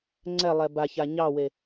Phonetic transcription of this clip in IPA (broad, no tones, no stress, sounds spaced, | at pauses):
ŋ͡ǀ ɛ lˠ ɛ b a ç a ɲ ɑ w e